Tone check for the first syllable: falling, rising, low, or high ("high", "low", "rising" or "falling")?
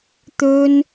high